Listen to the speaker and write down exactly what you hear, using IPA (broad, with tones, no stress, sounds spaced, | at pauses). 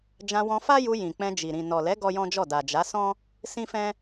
d͡ʒ ã˧ w ɔ̃˧ f a˦ j u˧ j ĩ˨ k͡p ɛ̃˧ d͡ʒ i˨ ɾ ĩ˨ n ɔ˨ l ɛ˨˦ ɡ ɔ˦ j ɔ̃˦ d͡ʒ ɔ˦˨ d a˨ d͡ʒ a˨˦ s ɔ̃˦ | s ĩ˦ f ɛ̃˦